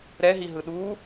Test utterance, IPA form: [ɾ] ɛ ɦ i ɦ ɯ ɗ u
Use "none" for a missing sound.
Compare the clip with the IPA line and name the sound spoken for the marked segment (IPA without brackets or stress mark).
ɾ